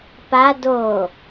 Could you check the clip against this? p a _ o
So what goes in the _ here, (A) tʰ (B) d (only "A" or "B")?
B